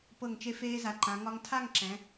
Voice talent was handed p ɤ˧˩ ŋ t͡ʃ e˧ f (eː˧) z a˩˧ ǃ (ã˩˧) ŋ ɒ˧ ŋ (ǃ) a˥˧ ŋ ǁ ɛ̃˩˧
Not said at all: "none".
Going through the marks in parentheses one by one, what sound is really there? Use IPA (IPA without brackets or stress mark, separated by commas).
eː˧, ã˩˧, tʰ